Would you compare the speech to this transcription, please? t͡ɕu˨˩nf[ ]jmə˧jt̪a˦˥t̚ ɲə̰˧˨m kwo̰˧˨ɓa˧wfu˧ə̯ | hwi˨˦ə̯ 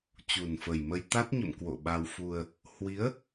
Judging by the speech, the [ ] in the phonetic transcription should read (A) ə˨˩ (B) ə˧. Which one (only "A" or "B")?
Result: A